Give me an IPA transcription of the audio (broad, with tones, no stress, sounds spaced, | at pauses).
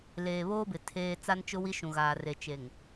l eː˨ β oː˦ b ɪ˨ tʰ eː˦ t͡s a˦ n t͡ʃ ʊ˦ w i˦ ʃ ũ˨ ɣ aː˨ r e˨ t͡ʃ e˨ ŋ